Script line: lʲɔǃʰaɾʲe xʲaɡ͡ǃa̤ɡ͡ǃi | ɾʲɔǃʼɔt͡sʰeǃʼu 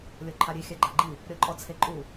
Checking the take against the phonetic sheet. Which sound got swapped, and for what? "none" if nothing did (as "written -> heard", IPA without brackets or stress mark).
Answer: none